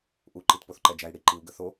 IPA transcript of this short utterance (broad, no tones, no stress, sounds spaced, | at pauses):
ʔ u ǃ i t p o θ ǃ ɛ d͡ʒ æ i̯ ɽ i ǃ i u̯ ɡ ə θ o